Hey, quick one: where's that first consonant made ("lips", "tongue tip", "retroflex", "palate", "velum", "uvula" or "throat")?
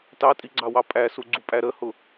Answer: tongue tip